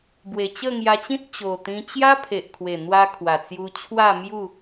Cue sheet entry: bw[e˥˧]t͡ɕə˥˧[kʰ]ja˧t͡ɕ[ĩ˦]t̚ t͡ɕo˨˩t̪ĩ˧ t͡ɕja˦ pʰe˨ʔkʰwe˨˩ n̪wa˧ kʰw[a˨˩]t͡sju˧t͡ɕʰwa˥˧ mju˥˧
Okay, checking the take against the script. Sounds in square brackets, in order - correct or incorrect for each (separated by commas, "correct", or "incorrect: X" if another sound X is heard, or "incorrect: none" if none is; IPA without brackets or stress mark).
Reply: incorrect: e˨˩, incorrect: ŋ, correct, correct